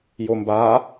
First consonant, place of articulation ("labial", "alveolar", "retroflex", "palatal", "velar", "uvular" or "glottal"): palatal